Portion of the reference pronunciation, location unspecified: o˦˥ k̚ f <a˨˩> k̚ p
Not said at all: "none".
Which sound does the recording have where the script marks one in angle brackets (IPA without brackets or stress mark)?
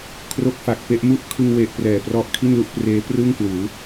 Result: a˨˩